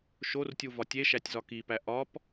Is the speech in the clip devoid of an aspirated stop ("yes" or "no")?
yes